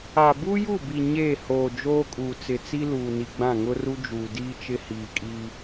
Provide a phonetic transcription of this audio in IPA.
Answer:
a˨ bu˦ju˦˨bi˨ ɲe˦˨ hoː˨ d͡ʒoː˦kʼuː˨t͡sɪ˨ t͡si˦luː˨ni˨ ɡ͡bã˦˨ŋʊ˦ru˦ d͡ʒuː˨diː˦t͡ʃɪ˦ hiː˨kʼi˦

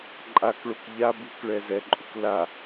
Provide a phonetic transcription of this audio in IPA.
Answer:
ǃʼakɭok ʎa buk ɭɛzɛǃʼuk la

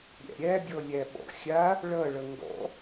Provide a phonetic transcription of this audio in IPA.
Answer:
ɾʲæ̰ɾʲæbʲɔlʲæ ɓɔ̰xʲa | ɭʌ ɭʌŋɡɔ̰

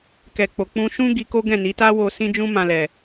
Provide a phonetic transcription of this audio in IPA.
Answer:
kɛ˨k͡po˨k͡pũ˧ ʃũ˦ ɡi˧ko˦ ɡɛ̃˦˨ni˨˦ ta˦wo˧ sĩ˦d͡ʒũ˦ mã˧lɛ˨

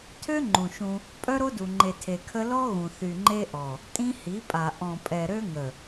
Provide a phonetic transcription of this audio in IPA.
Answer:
tʰø˦ŋ͡ǃũ˨ ʃũ˦ | pʼœ˦ɾo˦du˨ŋ͡ǃe˨ tʰe˨kʰə˦ lɔ˦ ɣũ˨θy˨ŋ͡ǃe˦ʔɔ˨ | tʼĩ˦hi˨˦pʼa˨ ʔɔ̃˨pʼɛ˨ ɾø˦ŋə˨

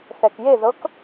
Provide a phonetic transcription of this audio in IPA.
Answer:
θɛkjeðɤk

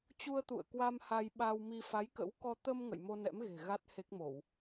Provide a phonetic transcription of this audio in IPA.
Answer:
t͡ɕu˧ə̯ t̪ṵ˧˨ə̯kwa˧m ha˧jɓa˧wmi˧ fa˨˦jkə̰˧˥w kɔ˧ t̪ə˧m ŋə̰˧˨jmo˧nɛ̰˧˥m ɣe̤˨˩ɣa˦˥t̚ he˦˥k̚mo˧˩˨w

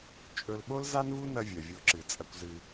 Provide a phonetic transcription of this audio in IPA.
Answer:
t͡ʃʼɵ˧l ɓo˦lza˦nvu˦ nɐ˦vʲɐ˨vʲo˧ǁɨ˨ t͡sʼɐ˧kʷzɨ˧

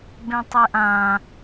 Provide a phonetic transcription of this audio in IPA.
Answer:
bẽtˤeʔã

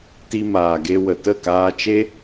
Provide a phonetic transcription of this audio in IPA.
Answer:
ti˧maː˨ɡe˧ wə˨tə˦˨kaː˧t͡ʃe˦

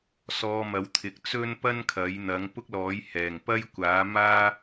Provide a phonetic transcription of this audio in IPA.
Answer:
sɔː˧mɐ˨˥wt̪ʰɪ˨˥k̚ t͡sɵ˥npɐ˥n kʰɐ˨˥j n̪ɐ˨˥ŋ pʊ˥k̚lɔː˨˥jhɛː˨˩ŋpɐ˥j kʷaː˨˥maː˥

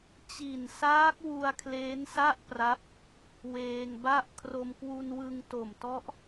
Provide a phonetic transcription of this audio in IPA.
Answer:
t͡ɕi˨˩nsaː˦˥k̚ wu˧a̯kʰleː˦˥nsa˥˩ʔpra˦˥p̚ | weː˧ŋba˥˩ʔ kʰro˧mkwu˧nwɯ˧ŋ to˨˩mtɔ˦˥ʔ

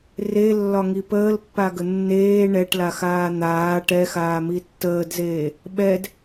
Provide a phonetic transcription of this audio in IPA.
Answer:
relːɒŋi pəːlpːaɡə nːeː ɳɛʈlaxaː n̪aː ʈɛxaːmi tːəːdzeː | ɓɛd

